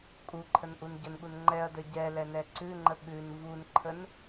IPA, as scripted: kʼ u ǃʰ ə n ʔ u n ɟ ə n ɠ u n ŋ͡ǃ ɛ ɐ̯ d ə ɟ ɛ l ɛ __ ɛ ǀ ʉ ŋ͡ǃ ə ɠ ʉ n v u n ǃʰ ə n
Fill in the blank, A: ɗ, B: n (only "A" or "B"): B